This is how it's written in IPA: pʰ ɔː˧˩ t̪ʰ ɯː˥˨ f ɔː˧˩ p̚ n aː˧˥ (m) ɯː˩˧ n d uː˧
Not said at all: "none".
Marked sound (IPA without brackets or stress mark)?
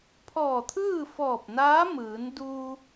m